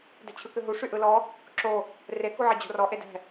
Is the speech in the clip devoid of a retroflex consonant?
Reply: no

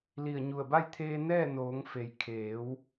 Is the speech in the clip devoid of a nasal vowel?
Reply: yes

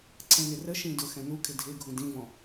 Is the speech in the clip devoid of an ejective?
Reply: yes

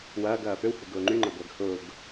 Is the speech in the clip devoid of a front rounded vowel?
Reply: no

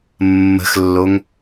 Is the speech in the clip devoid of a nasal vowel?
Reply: yes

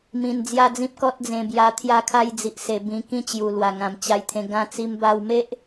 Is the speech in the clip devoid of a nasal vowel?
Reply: no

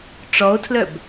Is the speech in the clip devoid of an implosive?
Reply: yes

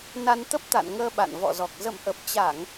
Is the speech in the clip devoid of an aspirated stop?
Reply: yes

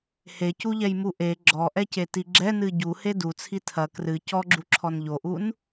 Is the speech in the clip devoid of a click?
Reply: no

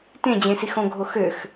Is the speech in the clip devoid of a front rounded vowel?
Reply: no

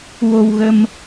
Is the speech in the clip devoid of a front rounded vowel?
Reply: yes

